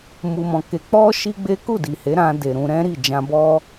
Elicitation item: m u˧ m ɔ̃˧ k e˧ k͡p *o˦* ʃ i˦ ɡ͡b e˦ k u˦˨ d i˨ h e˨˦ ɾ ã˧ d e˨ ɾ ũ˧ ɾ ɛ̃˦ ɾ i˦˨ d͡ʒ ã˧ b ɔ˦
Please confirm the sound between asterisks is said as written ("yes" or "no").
no